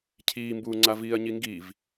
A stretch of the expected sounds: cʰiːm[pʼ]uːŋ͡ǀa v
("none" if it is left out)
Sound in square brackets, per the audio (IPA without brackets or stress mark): b